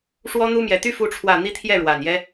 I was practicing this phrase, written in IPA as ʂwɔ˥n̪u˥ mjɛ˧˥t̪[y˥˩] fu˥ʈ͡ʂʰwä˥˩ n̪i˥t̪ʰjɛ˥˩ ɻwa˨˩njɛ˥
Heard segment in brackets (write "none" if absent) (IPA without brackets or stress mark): y˥